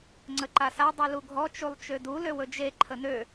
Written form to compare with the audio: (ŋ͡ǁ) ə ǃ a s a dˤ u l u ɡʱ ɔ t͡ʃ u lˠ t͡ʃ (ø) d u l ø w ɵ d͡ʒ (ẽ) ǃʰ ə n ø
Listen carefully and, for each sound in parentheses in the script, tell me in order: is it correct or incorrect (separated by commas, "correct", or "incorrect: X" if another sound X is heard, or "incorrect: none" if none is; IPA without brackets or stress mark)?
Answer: incorrect: ŋ͡ǀ, correct, incorrect: e